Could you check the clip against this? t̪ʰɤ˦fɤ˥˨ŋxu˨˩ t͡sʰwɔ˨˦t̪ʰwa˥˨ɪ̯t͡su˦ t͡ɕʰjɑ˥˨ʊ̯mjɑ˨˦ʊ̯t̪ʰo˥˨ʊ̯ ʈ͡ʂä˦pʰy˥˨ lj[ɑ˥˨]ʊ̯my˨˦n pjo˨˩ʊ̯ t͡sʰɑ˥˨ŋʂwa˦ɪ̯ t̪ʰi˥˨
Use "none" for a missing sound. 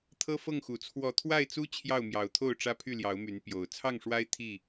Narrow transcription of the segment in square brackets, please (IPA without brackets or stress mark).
ɑ˨˦